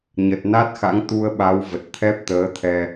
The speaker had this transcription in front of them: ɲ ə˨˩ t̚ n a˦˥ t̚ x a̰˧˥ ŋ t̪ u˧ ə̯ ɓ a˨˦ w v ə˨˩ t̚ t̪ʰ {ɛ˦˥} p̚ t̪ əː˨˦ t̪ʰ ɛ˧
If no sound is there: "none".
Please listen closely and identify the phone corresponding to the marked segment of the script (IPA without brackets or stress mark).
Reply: ɛ˦˥